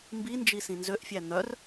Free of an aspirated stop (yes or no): yes